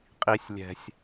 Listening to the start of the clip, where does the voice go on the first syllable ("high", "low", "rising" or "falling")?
low